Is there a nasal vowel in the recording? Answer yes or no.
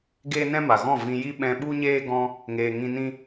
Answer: yes